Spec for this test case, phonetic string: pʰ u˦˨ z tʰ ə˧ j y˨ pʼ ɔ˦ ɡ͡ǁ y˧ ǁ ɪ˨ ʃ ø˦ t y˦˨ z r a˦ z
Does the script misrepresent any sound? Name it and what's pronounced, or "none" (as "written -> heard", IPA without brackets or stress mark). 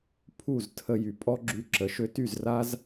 ɪ˨ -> ə˨